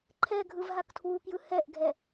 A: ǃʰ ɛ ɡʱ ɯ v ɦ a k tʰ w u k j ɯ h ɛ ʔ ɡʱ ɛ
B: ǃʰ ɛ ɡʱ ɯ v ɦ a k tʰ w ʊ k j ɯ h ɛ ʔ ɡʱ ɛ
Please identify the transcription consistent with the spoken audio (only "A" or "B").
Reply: A